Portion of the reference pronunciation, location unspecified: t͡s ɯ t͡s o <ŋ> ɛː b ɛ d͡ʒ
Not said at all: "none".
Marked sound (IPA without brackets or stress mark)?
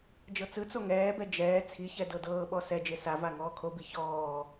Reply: ŋ